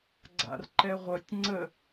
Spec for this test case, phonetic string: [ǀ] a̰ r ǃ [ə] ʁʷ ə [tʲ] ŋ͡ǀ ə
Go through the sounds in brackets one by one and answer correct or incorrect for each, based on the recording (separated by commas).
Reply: incorrect, incorrect, correct